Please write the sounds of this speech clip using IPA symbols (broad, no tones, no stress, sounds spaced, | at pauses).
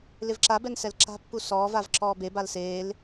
l ɪ v ǁ a b ɛ n s ɛ l ǁ a̤ pː u s ɔː v a v ǁ ɔː b e b a l s eː l